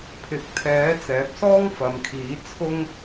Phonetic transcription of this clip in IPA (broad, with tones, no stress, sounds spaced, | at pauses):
pʰ ɪ˨˥ k̚ t̪ʰ ɛː˨˥ t͡s ɛː˨˥ p̚ s ɔː˥ ŋ f ɐ˨˧ m kʰ iː˨˥ t͡sʰ ʊ˥ ŋ